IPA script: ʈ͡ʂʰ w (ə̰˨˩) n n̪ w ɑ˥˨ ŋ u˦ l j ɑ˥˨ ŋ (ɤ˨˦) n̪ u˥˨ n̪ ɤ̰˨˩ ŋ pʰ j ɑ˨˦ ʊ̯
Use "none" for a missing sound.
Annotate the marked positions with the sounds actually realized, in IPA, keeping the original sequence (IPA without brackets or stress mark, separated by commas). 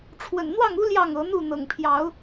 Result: ə̰˨˩, ɤ˨˦